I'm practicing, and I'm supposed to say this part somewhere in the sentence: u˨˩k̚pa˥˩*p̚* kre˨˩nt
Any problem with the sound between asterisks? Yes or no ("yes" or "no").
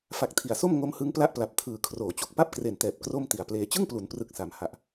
no